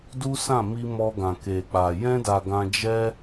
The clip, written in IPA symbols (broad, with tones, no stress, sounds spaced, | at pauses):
d u˦ s ã˦˨ m i˧ m ɔ˧ ɡ ã˨ k e˨ k͡p a˨ j ɛ̃˧ d a˨ ɡ ã˧ d͡ʒ ɛ˦